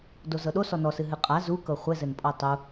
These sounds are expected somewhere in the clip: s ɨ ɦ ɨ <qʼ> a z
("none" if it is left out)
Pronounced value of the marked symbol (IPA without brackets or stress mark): qʼ